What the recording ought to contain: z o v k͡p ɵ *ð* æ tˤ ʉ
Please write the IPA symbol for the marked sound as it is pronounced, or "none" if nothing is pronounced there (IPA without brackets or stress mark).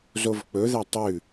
ð